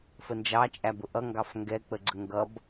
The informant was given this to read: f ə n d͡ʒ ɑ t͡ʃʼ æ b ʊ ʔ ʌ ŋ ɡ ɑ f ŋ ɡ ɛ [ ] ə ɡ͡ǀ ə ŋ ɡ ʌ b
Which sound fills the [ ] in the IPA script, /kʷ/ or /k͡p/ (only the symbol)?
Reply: k͡p